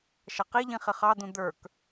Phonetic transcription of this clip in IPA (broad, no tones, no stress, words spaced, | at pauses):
ʃʌqiʎĩ χɪχɑd̪ũ d̪ə˞k